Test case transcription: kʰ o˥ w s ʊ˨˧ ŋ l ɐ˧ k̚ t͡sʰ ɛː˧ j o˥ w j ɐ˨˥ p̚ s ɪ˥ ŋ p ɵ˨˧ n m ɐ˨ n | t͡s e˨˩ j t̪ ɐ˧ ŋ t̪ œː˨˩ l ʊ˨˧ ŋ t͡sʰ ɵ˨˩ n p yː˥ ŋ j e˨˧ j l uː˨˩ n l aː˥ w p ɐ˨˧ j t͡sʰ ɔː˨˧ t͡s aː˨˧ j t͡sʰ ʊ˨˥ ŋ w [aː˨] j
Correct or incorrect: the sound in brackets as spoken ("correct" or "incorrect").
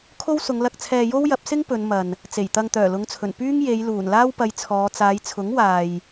correct